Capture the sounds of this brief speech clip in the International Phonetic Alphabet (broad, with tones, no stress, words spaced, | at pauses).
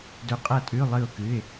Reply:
dɵ˧˥˧qʼɐ˥˨tʼʉ˧˥˧ lˠɨ˥˨ʊ̯kɨ˧˥˧ɪ̯